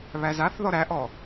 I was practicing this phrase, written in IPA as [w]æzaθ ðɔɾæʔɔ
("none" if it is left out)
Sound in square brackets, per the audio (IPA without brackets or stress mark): β